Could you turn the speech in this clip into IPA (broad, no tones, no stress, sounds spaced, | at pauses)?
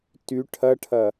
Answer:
t y ʈʰ ɐ ʈʰ ɐ